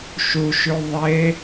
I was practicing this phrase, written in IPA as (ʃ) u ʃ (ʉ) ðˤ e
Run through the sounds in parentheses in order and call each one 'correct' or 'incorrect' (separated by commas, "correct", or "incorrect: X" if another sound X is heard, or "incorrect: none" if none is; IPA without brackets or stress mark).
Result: correct, correct